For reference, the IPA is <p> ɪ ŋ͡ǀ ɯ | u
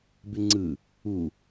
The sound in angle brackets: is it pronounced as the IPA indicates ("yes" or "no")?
no